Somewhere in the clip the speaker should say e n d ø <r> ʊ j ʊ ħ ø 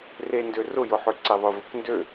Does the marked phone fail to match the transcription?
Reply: no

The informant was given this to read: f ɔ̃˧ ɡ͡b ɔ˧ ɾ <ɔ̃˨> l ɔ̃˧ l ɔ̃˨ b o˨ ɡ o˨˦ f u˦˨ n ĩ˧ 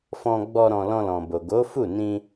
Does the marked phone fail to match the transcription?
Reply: yes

